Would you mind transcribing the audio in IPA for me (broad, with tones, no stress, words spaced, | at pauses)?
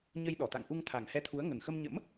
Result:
ɲə˧jɗɔ˧˩t̪a̰˧˨ŋʔu˧ŋ t̪ʰa˨˩ŋhɛ˧t̪ʰu˨˦ə̯ŋə˨˩n xə˧mɲə̰˧˥m